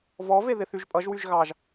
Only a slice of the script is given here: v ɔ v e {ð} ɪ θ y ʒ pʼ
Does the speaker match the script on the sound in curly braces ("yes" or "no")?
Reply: yes